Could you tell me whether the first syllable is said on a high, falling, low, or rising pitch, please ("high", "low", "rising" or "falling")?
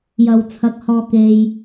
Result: low